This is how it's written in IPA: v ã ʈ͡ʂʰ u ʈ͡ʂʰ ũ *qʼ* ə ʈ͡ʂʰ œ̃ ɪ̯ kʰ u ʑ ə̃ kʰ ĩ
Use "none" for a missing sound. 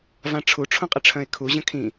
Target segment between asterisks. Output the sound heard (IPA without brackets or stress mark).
qʼ